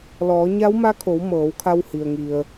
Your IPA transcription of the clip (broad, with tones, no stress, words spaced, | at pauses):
lɔː˩˧ɲa˧˥wma˧˥kʰo˩˧w mɤː˩˧wkʰa˧whi˩ə̯ŋi˩ə̯